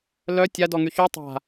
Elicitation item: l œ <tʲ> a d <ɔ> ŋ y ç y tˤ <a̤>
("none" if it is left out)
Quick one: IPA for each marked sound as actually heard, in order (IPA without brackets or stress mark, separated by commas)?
tʲ, ɔ, a̤